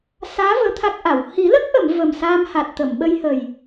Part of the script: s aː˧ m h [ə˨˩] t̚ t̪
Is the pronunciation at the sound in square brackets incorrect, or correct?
incorrect: a˨˩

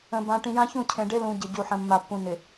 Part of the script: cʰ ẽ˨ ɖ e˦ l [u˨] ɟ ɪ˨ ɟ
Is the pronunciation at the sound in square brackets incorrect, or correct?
incorrect: ũ˨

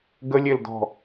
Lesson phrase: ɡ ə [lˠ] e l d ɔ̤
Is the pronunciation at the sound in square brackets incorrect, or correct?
incorrect: lʲ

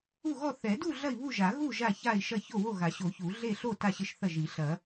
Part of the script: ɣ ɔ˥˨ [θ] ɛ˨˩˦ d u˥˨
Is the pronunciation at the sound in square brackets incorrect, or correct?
correct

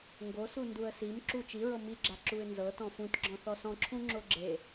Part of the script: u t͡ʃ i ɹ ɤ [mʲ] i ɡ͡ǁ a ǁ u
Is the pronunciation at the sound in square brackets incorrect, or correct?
incorrect: m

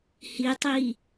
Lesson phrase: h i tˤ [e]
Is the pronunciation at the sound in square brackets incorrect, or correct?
incorrect: i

